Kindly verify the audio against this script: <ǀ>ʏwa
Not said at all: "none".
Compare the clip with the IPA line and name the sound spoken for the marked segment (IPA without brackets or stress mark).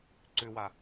ǀ